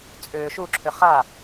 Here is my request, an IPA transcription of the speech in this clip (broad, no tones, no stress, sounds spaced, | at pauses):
t͡sʼ ʏː ʃ u ǁʰ ʏ χ a